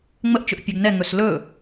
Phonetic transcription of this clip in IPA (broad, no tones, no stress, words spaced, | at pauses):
ŋ͡məʔt͡ʃɵʔ pʲœɡnɛ ŋɵslɵ